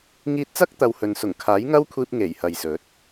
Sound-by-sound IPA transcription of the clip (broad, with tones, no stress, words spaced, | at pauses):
ŋiː˧t̚t͡sɐ˥k̚t̪ɐ˨w hɵ˨nsʊ˨˩ŋ kʰaː˨˥jŋɐ˥wkʷʰiː˧p̚ ŋe˨˩jhɐ˨jsɵ˨˥t̚